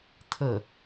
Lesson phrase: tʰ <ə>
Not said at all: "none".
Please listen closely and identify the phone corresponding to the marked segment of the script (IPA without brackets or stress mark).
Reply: ə